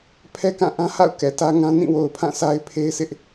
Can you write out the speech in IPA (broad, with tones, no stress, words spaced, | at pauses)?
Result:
pʰɛ˦kã˦˨ ʔã˦ha̰˦˨ʊ̯ kɛ˨tä˦ŋã˦ nĩ˦˨wo˨ʊ̯ pʰã˦˨sʰa˦ɪ̯pʰe˦ɪ̯sɪ˦ʔ